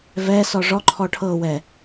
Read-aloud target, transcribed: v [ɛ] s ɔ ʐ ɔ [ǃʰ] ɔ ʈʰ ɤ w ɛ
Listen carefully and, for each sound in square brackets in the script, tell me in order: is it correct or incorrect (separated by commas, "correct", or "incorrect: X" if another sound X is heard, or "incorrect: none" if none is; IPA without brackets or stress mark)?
correct, correct